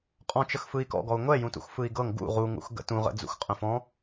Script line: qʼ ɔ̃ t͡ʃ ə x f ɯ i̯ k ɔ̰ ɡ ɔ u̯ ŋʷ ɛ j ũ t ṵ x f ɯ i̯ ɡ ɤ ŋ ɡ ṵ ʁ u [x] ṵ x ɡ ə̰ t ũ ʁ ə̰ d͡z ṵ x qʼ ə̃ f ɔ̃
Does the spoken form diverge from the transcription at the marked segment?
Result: yes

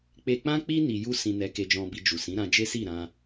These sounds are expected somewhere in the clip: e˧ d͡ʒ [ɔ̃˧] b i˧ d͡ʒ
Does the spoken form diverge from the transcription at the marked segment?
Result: no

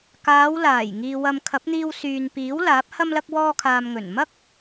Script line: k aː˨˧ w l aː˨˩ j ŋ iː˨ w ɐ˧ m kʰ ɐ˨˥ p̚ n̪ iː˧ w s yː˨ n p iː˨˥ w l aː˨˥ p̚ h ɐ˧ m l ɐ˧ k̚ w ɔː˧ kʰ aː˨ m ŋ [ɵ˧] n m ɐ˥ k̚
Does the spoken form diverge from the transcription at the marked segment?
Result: yes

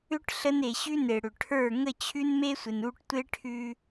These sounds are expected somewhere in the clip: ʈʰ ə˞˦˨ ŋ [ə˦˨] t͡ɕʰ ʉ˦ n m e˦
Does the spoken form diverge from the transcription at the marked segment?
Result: no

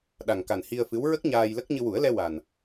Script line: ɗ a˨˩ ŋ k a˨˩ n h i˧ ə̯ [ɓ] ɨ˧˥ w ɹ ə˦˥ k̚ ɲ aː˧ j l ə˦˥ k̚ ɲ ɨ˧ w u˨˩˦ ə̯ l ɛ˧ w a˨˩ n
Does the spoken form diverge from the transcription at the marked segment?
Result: yes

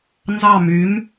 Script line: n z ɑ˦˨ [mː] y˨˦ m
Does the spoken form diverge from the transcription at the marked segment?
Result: yes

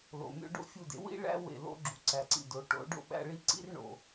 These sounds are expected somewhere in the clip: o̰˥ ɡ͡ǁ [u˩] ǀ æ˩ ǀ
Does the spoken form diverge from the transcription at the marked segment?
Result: no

